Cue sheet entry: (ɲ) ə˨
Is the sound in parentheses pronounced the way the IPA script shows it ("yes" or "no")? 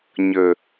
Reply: yes